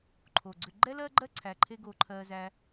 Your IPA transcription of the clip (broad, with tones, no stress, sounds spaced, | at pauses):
ǃʰ o˨ ɡ͡ǀ ʏ˧ ɡ͡ǃ ɛ˦ l ɜ˦ ɡ͡ǃ ɜ˦ ǀʰ æ˧ ǃʰ e˦ ɡ o˧ ǃʰ ɜ˧ z æ˧